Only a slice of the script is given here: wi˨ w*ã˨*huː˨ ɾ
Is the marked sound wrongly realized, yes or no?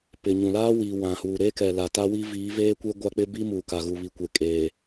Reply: no